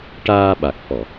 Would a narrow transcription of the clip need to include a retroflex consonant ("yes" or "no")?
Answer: yes